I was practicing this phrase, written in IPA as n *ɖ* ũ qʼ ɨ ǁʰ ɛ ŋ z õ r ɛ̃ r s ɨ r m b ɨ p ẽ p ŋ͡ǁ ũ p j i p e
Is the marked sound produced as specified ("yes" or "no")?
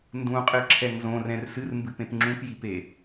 no